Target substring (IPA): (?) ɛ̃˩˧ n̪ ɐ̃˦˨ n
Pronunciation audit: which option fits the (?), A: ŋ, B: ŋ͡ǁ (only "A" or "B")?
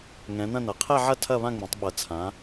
A